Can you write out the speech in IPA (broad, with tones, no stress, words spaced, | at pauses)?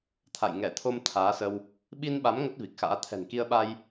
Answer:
t̪ʰa̰˧˨j ŋɛ˧˩t̪ʰo˧m t̪ʰaː˨˦sə˧w | ɓi˧nɓa˨˦m ŋə˦˥t̚vi˨˩k̚xa̰ː˧˥ t̪ʰɛ̤˨˩nki˧ə̯ɓa˧j